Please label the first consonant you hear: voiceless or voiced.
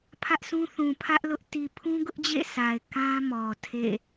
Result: voiceless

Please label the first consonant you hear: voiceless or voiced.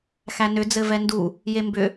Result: voiceless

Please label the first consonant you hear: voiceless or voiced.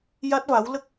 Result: voiced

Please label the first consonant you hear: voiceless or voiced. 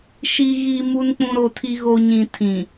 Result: voiceless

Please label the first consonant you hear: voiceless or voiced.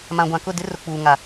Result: voiced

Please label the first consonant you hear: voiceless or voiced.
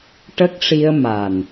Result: voiceless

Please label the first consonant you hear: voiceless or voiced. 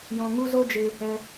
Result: voiced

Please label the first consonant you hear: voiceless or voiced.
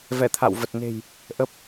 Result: voiced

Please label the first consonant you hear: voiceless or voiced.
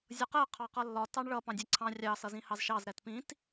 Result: voiced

